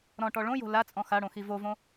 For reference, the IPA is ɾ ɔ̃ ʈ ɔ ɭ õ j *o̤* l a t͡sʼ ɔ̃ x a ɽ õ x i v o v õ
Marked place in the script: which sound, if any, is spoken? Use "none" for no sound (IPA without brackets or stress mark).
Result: o̤